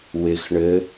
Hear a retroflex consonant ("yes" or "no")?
yes